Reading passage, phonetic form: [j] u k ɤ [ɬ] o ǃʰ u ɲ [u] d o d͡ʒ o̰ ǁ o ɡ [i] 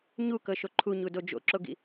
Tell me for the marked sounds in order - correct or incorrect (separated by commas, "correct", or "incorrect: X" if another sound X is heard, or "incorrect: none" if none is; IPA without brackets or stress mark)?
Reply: incorrect: ɲ, incorrect: ʃ, correct, incorrect: ḭ